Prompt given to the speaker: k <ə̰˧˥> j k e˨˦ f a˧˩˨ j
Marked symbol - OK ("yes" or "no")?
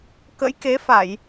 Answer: yes